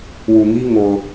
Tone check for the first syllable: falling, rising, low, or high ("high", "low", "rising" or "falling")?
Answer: low